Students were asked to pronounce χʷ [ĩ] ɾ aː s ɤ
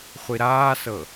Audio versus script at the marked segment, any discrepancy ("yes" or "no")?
yes